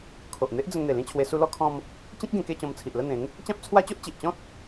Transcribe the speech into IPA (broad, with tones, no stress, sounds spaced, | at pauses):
kʰ o˨ ʔ n̪ e˦ ʔ d͡z ə˧ ŋ n̪ e˨˩ l ĩ˥˧ t͡ɕʰ w e˧ s u˧ l ɔ˧ kʰ ɔ̃˧ m | t͡ɕ ĩ˦ k̚ ɡ ẽ˧ k e˥˧ t͡ɕ ɔ̃˧ m t͡sʰ i˨ ʔ l ə˥˧ n̪ ẽ˨˦ ŋ | t͡ɕ ã˦ p̚ t͡sʰ w a˦ t͡ɕ o˦ ʔ t͡ɕ i˨ ʔ t͡ɕ ɔ̃˦ t̚